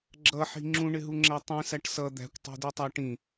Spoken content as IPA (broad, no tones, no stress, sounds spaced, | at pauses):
ɡ͡ǁ ʌ ħ i̤ ŋ͡ǁ ũ ɳ ɪ ɦ u ŋ͡ǁ æ tˤ ĩ s æ ʈ s ʌ d̪ æ̤ kʷ tˤ e̤ d i tˤ a ʈ ĩ